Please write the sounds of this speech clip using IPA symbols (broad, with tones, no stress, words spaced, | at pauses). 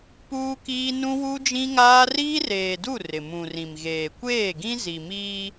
puː˦kiː˦ nũ˦wu˦d͡ʒĩ˦ŋaː˦ riː˦reː˨du˦˨ rɪ˨mũ˨rĩ˨mɣeː˨ kʷeː˦˨ɡĩ˦ zi˨miː˦